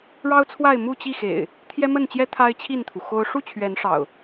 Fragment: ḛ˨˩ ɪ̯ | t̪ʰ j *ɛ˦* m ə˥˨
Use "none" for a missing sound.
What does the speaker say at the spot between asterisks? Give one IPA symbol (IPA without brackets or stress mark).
ɛ˦